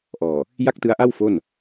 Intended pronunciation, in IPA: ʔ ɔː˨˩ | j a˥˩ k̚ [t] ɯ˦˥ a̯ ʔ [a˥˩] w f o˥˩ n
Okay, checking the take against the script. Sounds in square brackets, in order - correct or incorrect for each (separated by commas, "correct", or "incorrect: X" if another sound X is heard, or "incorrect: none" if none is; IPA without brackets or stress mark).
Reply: correct, correct